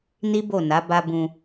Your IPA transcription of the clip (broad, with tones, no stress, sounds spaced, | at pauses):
n i˦ b o˦˨ n a˨˦ b a˧ b ũ˧